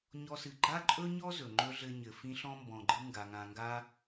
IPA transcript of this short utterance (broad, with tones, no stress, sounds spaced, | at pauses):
ɲ ɔ˦ s ɨ˨ ɡ͡ǃ a˥ ǃʼ ɵ˥ ɲ ɔ˥ z ɵ˩ ŋ͡ǃ ɵ˥ ɮ ɘ˦ ɲ ɘ˩ f ĩ˦ ɬ ɔ̃˥ m b ɔ̃˨ ɡ͡ǃ ɨ˥ ŋ ɡ a˩ ŋ ã˨ ŋ ɡ a˥